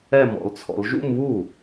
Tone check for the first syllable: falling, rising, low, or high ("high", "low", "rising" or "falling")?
falling